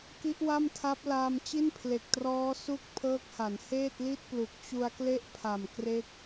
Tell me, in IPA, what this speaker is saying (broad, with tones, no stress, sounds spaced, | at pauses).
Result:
k i˦˥ ʔ w a˥˩ m tʰ a˦˥ p̚ l aː˧ m t͡ɕ i˥˩ n pʰ l e˨˩ k̚ t r ɔː˦˥ s u˥˩ k̚ pʰ ɤː˦˥ k̚ h a˩˦ n h eː˥˩ t̚ l i˥˩ t̚ p l u˨˩ k̚ t͡ɕ u˧ a̯ k l e˥˩ ʔ pʰ a˨˩ m k r e˦˥ k̚